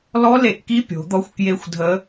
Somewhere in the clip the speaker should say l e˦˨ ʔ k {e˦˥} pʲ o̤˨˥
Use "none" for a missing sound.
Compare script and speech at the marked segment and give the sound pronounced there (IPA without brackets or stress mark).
i˦˥